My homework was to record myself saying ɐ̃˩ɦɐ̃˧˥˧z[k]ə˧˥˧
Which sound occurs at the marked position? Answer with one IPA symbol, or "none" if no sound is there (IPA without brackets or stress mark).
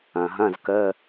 k